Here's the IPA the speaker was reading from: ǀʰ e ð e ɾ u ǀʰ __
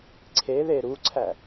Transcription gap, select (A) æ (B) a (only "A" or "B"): A